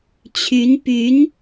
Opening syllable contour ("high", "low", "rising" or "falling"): rising